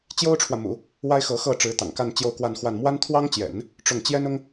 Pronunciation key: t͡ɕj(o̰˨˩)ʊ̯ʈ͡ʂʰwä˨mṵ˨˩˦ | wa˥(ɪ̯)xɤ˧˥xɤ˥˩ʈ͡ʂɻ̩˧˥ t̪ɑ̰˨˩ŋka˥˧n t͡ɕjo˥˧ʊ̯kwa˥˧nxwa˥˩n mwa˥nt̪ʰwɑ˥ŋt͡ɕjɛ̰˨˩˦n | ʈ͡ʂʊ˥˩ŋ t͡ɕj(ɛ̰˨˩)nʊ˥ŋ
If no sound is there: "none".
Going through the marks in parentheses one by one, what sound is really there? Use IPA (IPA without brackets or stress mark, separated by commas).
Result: o˥, ɪ̯, ɛ˥